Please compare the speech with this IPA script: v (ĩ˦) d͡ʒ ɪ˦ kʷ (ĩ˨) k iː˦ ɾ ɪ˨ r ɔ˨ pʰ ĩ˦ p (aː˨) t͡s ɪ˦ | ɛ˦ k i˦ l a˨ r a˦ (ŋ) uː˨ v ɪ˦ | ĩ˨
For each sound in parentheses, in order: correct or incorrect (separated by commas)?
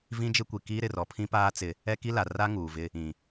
correct, incorrect, incorrect, correct